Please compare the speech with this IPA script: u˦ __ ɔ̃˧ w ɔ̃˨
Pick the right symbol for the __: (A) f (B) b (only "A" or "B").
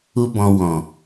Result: B